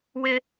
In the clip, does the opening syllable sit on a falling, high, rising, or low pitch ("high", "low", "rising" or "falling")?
high